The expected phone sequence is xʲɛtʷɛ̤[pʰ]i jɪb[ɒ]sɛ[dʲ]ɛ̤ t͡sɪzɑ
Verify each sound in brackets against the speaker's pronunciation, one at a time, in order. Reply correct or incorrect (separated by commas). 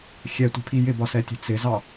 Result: correct, correct, incorrect